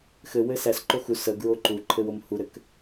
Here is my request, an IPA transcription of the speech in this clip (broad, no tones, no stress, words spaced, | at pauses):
xɘwɘ sæsǃo xu səɡɹo ǃuǃʰɘwom huɾɘk